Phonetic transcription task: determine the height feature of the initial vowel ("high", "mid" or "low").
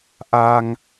low